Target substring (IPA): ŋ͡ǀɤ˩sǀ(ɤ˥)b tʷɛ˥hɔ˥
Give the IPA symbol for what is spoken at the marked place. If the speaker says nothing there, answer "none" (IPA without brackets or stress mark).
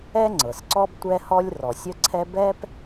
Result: ɔ˥